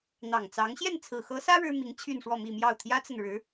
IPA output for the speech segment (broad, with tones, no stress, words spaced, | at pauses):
n̪ɑ˨˩ŋt͡sɑ˧˥ŋ ɕjɛ˥˩nt͡sʰɹ̩˨˩xɤ˧˥sä˥ ɻɻ̩˥mi˧˥ŋ t͡ɕʰy˥˧nʂwɔ˥˧mi˥˧mjɑ˥˩ʊ̯ t̪ʰjä˥t͡sə˨nɻɻ̩˧˥